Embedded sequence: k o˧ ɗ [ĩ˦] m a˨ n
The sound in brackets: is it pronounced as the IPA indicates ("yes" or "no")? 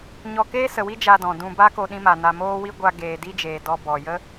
no